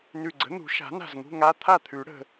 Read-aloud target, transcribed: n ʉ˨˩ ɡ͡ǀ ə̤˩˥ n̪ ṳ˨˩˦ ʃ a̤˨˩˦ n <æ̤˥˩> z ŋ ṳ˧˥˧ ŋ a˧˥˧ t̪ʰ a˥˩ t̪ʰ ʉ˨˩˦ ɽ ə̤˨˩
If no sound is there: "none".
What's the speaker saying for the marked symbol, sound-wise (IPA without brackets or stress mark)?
a̤˥˩